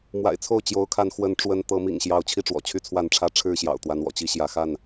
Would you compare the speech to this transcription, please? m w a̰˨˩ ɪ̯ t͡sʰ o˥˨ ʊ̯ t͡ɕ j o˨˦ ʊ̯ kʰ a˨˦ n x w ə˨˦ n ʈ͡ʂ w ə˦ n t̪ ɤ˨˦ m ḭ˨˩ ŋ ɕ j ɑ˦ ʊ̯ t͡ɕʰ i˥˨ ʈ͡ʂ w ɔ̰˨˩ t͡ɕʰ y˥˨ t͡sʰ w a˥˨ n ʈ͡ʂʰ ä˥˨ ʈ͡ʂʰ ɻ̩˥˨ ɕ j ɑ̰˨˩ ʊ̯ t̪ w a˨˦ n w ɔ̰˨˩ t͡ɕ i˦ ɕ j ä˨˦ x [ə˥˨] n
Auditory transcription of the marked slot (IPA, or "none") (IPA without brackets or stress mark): a˥˨